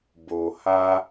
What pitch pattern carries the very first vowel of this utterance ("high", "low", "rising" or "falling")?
low